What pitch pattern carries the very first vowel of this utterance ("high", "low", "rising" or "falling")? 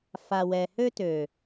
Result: low